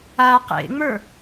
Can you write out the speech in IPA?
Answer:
a q ḛ ŋ͡m ə˞

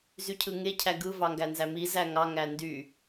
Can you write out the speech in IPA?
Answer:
z y cʰ ɯ ŋ e cʰ æ ɡ ɯ v ɑ ŋ ɡ æ n z æ m i z æ ŋ ɑ ŋ æ n d y

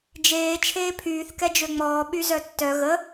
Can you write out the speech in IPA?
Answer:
d͡ʒ eː t͡ʃʰ eː pʰ yː θ k ɛ d͡ʒ ø ŋ͡m ɔː ɓ y z œ tː œ ɣ ə

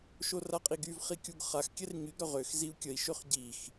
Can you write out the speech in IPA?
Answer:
ʃ o r a qʼ i ɡ y v χ i kʲ u ɡ χ a x kʲ ɛ r ɲ y ɡ ɾ œ ʁ ø x z i u̯ kʲ ə i̯ ʃ ø χ ɟ i x

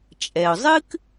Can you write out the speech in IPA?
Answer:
t͡ʃʼ ɛ˩ ʊ̯ zˤ ɨ˥ k

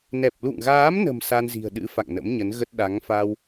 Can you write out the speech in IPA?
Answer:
n ɛ˨˩ p̚ l ṵ˧˨ ŋ ɣ aː˨˦ m n ə̤˨˩ m s a˧ n z i̤˨˩ ə̯ ɗ ɨ̰˧˥ f a̰˧˨ ŋ n ə̰˧˥ m ɲ ə˨˦ n ɣ ə˦˥ t̚ ɗ a˨˦ ŋ f a˧ w

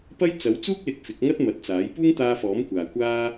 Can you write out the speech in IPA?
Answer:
p ɐ˥ j t͡s ɐ˨˥ w t͡s uː˥ k̚ l ɪ˨˥ k̚ f ɪ˨˥ k̚ ŋ ɐ˥ t̚ m ɐ˨˥ t̚ t͡s aː˨˥ j p uː˥ ŋ t̪ aː˧ f ɔː˨˥ m kʷ aː˨ kʷ aː˥

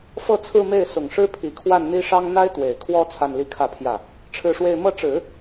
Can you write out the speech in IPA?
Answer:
f ɤ˥˧ t͡sʰ ɹ̩˥˧ m e˥˩ ɪ̯ s ʊ˨˩ ŋ ʂ ɻ̩˥ pʰ i˨˩ kʰ w a˥˩ n n̪ i˥ ʂ ɑ˥ ŋ n̪ a˥ ɪ̯ t̪ w e˨˩ ɪ̯ kʰ w ɔ˥ t͡sʰ a˥˧ n l i˥˧ kʰ ä˥˧ pʰ j ä˥˩ | ʈ͡ʂʰ ɻ̩˥˧ ʂ w e˥˧ ɪ̯ m ɤ˥˩ ʈ͡ʂ ɻ̩˨˩˦

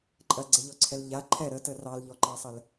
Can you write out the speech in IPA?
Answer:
ǃʼ ɐ ɡ͡ǀ ɛ ʎ ɔ ǀʰ ɛ l ʎ a ǃʰ ɛ ɾ ə t ə r ɑ l ʎ ɔ ǃ ɑ sˤ ə l

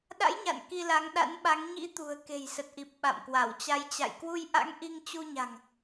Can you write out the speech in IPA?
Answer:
ɗ a̰˧˥ j ɲ a̰˧˨ n k i˧ l a˨˦ ŋ ɗ a̰˧˥ n ɓ a˨˦ ŋ ɲ ḭ˧˥ t̪ ṳ˨˩ ə̯ k e̤˨˩ j s ə˨˩ t̚ ʔ i˨˩ p̚ ɓ a̰˧˨ m k w a˧˩ w t͡ɕ a˧ j t͡ɕ a̰˧˨ j k w u˧ j ʔ a̰˧˥ ŋ ʔ i˧ ŋ t͡ɕ u˧ ɲ a̤˨˩ ŋ

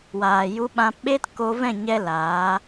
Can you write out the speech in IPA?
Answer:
w aː˨ j u˧ ɓ ã˧ p ɓ e˦ t k o˧ v ɛ̃˦˨ ɲ ɛ˦ l aː˨˦

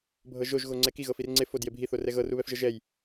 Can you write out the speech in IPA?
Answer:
bʱ ɤ ʒ o ʒ ɣ o ŋ͡ǀ ɛ k i ɣ ɤ f i r ŋ͡ǀ e f o d j e bʱ i θ o r ɛ ɣ ɤ r u β ɛ f ʒ ɤ ʒ ɛ j

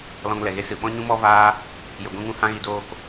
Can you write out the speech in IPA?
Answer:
l ɔ̃˧ ŋ l ɛ˨ ɣ e˦ s ɨ˨ ɓ ɔ̃˦ ɲ ũ˦ m ɔ˦ v aː˦ | j ə˨ ɡʷ ĩ˧ ŋ ũ˧ h ã˧ ɣ i˨ d oː˧ k

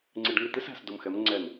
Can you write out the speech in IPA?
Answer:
ŋ͡ǀ ɪ˧ ɖ ŋ ɪ˥˩ t̪ ɪ˥ s æ̤˧ s d ʊ˧ m x ɛ˩˥ m ŋ͡ǀ ɛ˥˩ n

